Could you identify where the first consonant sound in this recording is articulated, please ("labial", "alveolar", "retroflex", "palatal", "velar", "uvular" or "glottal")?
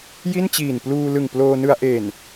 palatal